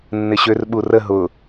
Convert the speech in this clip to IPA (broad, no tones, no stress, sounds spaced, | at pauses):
nː ɪ ɕ ø r ɓ u r ə ɦ ʊ